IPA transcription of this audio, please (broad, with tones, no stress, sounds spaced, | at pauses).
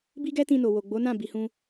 b i˦ ɡ ɛ˦ t ĩ˧ n o˨ w o˨ ɡ͡b o˨˦ n ã˦˨ b i˨˦ h ũ˦